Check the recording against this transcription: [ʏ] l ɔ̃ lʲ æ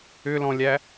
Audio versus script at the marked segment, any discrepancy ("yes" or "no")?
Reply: no